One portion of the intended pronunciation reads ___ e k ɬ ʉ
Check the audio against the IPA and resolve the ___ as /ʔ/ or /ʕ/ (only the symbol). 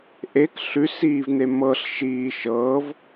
ʔ